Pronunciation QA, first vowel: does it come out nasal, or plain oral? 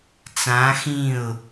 nasal